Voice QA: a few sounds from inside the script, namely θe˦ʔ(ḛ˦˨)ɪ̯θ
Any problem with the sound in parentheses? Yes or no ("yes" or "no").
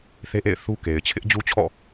no